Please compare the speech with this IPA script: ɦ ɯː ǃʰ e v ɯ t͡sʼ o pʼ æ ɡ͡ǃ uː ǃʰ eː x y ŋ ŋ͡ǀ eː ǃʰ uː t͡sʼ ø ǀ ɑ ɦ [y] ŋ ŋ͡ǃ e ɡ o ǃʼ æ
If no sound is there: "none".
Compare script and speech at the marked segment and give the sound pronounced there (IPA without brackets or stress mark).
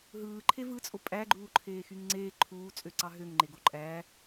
ø